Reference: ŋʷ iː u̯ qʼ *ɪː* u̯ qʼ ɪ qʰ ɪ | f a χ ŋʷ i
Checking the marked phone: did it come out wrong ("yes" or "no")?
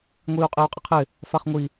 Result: no